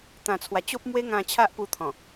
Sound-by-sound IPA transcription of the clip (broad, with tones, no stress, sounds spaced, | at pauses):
t̪ ã˨˩ t͡sʰ w a˨˩ t͡ɕ o˦ p̚ m w e˦ ŋ ã˧ t͡ɕʰ a˦ ʔ p u˧ t̪ʰ ɔ̃˨˩